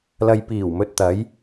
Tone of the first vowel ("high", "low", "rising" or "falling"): low